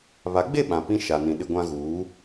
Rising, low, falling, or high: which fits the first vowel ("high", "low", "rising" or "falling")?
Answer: rising